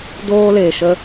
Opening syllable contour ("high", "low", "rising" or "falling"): high